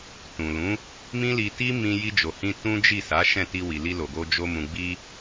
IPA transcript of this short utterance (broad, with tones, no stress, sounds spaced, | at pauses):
t ũ˨ l ũ˨˦ | m ĩ˦ l i˧ t i˦ m ĩ˧ j i˧ d͡ʒ o˨ h ĩ˧ t ũ˦ d͡ʒ i˦˨ s a˨˦ ʃ ɛ̃˦˨ t i˧ w i˨ l i˧ l o˨ ɡ o˧ d͡ʒ o˧ m ũ˨ ɡ͡b i˧